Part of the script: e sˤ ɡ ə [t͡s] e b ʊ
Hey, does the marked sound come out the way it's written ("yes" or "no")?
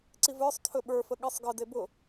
no